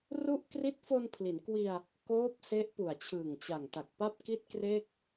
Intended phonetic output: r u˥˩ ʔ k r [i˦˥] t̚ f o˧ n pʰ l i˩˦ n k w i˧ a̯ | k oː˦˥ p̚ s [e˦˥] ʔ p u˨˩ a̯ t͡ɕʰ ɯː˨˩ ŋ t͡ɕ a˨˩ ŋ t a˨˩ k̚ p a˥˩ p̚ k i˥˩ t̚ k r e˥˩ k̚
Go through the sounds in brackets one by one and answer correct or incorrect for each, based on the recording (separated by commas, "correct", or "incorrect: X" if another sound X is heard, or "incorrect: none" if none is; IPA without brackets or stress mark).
correct, correct